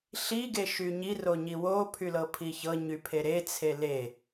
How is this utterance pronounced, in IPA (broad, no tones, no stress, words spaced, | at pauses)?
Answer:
ɬi ɡeʃyɲi roɲiwo pʰylɤpʰiçɤ ɲypʰeɾe t͡sʰele